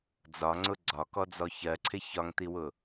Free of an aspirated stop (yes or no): no